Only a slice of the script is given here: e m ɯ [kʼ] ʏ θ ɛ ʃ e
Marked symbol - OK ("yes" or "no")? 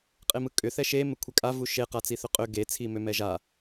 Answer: yes